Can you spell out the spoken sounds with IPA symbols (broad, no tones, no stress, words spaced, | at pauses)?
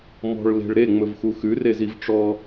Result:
mɔ̤ɭle̤ɭ ɾeŋ͡mɵvxu xʉreziv ʈ͡ʂɔ